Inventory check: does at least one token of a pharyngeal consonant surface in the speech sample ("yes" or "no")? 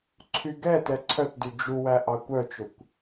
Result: no